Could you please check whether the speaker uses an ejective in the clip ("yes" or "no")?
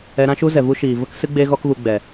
no